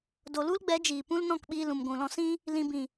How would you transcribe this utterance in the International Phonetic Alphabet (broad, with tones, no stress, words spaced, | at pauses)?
do˨lu˦lɡ͡bɛ˨˦ d͡ʒiː˨pũ˦l nɔ̃˦˨kɓiː˧ lũ˨mɡʷũ˨lɔ̃˧ sĩ˦ | lĩ˧ bĩ˨